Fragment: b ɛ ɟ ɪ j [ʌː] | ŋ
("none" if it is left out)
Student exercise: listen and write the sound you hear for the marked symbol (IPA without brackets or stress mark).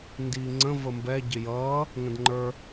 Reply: ʌː